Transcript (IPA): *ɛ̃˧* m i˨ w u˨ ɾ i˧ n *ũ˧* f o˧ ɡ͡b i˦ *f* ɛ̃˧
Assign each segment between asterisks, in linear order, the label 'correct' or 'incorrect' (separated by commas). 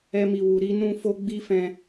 incorrect, correct, correct